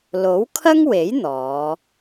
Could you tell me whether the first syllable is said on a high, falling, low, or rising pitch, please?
rising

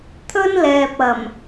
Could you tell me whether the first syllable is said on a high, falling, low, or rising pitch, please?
high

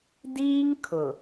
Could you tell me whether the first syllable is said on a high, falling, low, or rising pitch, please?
high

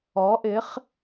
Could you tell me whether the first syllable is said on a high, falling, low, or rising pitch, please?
rising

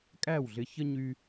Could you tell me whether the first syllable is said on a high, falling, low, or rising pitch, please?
falling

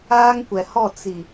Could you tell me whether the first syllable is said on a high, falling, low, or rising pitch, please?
high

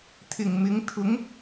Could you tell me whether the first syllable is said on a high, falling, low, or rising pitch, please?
low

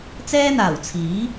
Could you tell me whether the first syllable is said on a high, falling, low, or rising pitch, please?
high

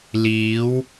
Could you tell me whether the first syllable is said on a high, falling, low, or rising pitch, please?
rising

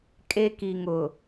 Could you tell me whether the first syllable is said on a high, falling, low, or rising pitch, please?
high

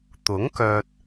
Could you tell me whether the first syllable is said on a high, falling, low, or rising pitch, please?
rising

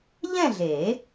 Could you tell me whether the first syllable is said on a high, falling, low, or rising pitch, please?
falling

